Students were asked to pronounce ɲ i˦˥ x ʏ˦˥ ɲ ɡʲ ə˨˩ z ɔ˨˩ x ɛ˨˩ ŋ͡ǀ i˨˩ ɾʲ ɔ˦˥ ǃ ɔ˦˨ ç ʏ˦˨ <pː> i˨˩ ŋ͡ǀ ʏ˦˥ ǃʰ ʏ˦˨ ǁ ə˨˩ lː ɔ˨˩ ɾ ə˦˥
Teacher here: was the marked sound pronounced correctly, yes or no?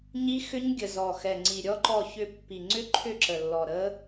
yes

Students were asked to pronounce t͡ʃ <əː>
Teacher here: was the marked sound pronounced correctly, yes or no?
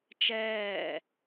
no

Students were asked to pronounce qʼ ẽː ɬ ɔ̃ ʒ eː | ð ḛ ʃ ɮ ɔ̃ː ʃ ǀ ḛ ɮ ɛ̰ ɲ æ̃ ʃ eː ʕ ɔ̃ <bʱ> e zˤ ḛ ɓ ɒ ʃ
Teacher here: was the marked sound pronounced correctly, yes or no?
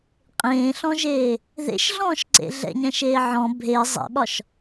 yes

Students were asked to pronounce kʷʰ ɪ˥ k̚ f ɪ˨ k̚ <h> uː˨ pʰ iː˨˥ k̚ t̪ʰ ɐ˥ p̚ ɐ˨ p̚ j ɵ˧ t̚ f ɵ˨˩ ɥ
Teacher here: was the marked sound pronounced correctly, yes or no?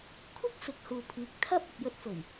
yes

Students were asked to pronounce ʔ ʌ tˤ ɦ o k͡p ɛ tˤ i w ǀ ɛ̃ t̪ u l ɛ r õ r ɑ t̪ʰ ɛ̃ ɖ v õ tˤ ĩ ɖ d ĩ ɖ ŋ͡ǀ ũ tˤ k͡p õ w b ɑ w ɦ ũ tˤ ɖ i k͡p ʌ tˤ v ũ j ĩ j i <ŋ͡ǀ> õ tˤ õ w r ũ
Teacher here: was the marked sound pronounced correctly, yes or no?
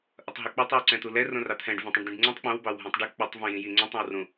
yes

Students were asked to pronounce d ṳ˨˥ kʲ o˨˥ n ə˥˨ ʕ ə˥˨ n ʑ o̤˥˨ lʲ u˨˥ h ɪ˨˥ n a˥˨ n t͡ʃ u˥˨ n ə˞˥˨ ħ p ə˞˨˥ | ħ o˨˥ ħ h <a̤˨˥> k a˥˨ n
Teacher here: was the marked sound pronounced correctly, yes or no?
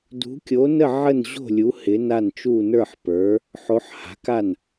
yes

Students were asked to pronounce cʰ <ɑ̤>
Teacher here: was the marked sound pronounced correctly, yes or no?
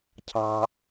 yes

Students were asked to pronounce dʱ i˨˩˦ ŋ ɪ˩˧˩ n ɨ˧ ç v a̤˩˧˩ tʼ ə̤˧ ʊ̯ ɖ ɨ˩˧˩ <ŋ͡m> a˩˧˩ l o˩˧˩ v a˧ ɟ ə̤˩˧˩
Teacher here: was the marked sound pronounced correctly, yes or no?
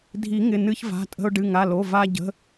no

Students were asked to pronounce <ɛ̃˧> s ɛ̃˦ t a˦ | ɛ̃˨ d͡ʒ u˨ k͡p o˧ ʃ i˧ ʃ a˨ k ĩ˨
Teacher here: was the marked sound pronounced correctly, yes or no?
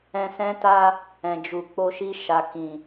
yes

